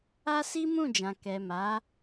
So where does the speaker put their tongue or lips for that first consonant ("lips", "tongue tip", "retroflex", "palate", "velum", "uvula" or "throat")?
tongue tip